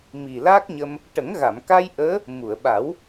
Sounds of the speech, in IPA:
mi˨˩la˦˥k̚ɲə˧m | ʈə˨˩˦ŋɣa˨˩˨mka˧j ʔəː˧˥ | mu˨˩˨ə̯ɓa˨˩˦w

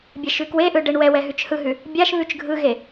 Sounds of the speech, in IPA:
bʲɛʃʉkweʔɯ ɖeɳwɛwɛ ɦʉt͡ʃhɯɦʉ | bʲaʃ βʉt͡ʃɡʱɯɣe

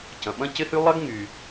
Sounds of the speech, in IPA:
cɐ̃˩ɓɐ̃˥ cɪ˥hy˥ lˠɐ˥ɡŋy˩

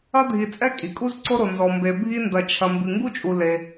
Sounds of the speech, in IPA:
ɐ˥dʱi˨ t͡sʼɛ˥kʼi˩kʼu˥z ǀo˥ɾo˨nzɔ˨mbe˨ bʱi˦ndɐ˨t͡ʃʰɐ˨ mbɨ˨ŋɡu˥t͡ʃʼu˨ le˨

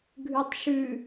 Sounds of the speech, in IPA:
ɡʱʉtˤʃʉ

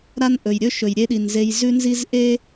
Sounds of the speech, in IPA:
ɾa˦nʔɵ˩jɾʲɵ˥ ʃɵ˩jɾʲe˦ɗi˩n ze˨j zʉ˦nzi˦zʔe˥

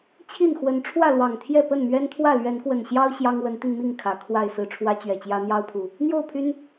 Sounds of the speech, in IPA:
t͡ɕʰi˥˨n xwə˨˦n ʈ͡ʂʰwä˥˨lwɑ˨˩ŋt̪ʰjɛ˥˨ pə˥˨nmɥɛ˦nt̪ʰwä˥˨ lɥɛ˨˦nkwə˨˩nɕjɑ˦ʊ̯ ɕjɑ˦ŋwə˨˦nt̪i˧nmi˥˨ŋ kʰä˨˩kʰwa˥˨ɪ̯sɹ̩˥˨ ʈ͡ʂʰwä˦t͡ɕɥɛ˨˩t͡ɕjä˦ n̪jɑ˦ʊ̯pʰu˨˩ | n̪jo˥˨ʊ̯pʰy˦n

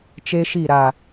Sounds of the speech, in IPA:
t͡ʃe˦ʃi˦˨ ɾa˦˨

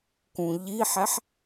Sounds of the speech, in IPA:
kũʎiħæħ

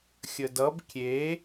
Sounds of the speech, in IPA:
xʲədʌb kʲe

